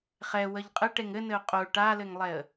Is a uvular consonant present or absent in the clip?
present